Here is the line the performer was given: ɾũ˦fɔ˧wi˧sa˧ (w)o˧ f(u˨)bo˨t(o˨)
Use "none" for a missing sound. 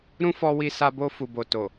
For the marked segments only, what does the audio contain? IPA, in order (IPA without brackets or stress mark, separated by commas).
b, u˨, o˨